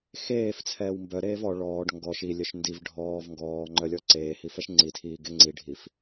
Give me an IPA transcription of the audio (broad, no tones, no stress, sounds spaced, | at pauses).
x eː f t͡sʰ ɛː w m b œ ɾ eː v ɔ ɭ ɔː ɖ ŋ ɡ ɔ ʃ i lʲ œ ʃ n d i v ɖʱ ɔː v ŋ ɡ ɔː ŋ͡ǃ œ lʲ ɔ ǀ eː h i f ɛ ʃ ŋ͡ǀ i tʰ iː ɡ e ŋ͡ǀ i ɖʱ i f